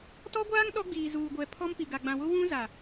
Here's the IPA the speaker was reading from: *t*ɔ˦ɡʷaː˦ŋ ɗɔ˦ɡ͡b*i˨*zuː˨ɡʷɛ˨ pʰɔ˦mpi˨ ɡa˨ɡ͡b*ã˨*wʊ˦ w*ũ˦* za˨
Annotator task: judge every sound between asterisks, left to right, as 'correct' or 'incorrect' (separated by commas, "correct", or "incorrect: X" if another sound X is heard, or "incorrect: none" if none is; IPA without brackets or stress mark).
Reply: correct, incorrect: iː˨, correct, correct